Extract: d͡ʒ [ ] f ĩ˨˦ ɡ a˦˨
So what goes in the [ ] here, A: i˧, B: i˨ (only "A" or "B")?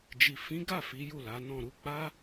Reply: B